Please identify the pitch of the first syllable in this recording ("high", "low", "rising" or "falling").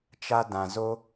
high